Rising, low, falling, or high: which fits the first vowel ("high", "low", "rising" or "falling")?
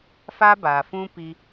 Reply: high